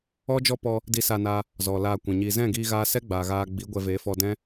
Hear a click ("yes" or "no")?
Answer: no